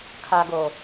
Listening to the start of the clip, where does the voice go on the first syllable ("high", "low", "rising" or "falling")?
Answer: low